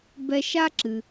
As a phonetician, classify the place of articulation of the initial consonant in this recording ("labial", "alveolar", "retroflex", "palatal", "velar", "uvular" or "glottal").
labial